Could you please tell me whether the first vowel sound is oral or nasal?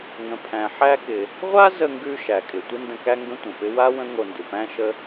nasal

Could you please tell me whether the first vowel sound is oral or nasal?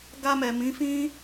oral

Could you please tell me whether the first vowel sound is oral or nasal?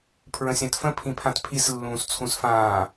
nasal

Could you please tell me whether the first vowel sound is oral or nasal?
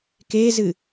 oral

